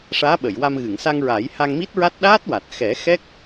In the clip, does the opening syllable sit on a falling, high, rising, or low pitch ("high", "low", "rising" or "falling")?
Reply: rising